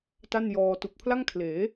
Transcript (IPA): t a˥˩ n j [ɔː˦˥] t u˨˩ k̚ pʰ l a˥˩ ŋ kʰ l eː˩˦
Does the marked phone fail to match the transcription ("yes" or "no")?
yes